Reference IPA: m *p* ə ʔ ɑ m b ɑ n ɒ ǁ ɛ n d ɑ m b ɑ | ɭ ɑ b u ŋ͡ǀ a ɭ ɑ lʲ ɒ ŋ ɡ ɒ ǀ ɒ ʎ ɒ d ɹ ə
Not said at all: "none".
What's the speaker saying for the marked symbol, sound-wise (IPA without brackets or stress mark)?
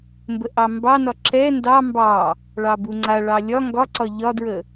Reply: b